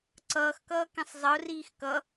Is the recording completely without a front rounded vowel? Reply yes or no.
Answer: yes